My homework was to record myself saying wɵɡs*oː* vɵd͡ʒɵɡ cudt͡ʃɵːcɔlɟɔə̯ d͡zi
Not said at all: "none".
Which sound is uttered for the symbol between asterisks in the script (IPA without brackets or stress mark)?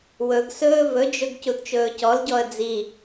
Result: ɵː